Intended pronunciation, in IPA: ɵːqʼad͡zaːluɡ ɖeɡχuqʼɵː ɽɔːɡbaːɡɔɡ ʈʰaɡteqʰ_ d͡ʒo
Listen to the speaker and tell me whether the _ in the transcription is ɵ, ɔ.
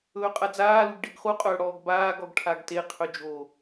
ɵ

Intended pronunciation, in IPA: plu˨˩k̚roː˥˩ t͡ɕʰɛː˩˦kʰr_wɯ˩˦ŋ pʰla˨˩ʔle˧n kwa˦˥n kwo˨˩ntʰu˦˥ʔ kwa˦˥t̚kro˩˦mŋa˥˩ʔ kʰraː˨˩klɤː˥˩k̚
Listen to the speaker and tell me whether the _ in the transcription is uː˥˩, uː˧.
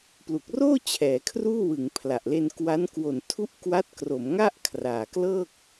uː˥˩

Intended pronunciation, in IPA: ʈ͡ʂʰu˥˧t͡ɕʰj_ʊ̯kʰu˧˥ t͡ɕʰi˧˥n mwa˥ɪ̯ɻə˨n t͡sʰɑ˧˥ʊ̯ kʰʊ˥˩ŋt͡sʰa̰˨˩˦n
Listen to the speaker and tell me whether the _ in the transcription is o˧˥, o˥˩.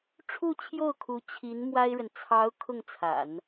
o˥˩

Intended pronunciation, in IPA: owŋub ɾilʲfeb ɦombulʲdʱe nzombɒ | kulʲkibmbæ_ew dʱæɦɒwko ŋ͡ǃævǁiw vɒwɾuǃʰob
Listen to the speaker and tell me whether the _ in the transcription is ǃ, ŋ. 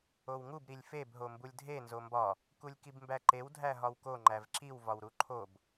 ǃ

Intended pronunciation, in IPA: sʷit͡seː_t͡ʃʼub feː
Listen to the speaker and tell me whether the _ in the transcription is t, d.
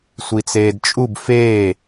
d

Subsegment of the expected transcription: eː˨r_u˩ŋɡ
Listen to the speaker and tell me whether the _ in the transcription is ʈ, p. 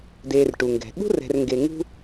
ʈ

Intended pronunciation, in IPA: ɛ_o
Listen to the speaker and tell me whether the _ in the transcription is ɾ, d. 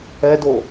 d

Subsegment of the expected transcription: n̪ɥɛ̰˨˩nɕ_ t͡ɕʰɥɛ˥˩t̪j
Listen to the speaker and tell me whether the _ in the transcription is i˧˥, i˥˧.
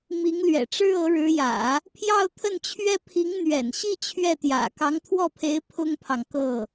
i˥˧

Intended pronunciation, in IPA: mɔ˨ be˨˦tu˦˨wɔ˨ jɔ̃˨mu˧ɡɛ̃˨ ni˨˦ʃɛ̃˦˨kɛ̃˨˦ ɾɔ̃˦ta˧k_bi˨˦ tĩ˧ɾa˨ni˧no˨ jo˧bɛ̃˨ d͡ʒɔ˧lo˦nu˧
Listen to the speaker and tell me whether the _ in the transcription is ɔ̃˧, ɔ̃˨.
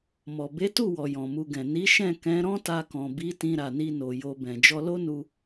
ɔ̃˨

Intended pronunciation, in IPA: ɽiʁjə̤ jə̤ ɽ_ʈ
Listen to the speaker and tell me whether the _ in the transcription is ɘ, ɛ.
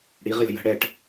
ɛ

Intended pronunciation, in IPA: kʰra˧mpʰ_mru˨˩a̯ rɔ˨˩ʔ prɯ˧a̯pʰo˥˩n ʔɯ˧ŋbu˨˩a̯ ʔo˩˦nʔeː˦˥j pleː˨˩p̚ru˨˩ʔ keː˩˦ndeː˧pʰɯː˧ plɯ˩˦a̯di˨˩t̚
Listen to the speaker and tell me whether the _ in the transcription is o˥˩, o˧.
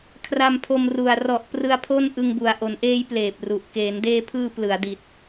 o˧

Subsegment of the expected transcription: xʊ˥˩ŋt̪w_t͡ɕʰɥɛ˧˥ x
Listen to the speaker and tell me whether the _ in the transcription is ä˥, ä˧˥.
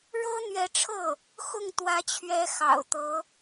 ä˧˥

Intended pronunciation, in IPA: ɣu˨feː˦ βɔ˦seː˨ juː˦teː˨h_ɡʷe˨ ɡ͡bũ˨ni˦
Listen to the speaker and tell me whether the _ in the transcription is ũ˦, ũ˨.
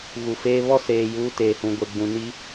ũ˨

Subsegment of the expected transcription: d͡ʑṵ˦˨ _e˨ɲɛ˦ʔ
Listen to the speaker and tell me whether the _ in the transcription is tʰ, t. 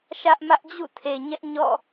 tʰ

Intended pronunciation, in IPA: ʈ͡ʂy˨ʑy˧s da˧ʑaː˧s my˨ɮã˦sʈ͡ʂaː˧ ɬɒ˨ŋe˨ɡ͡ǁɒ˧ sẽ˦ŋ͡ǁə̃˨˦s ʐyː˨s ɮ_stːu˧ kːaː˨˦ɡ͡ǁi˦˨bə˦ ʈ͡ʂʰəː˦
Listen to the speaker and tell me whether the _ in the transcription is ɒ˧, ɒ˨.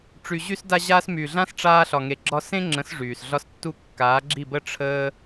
ɒ˧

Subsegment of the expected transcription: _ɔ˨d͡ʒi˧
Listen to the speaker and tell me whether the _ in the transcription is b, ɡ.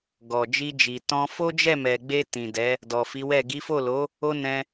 ɡ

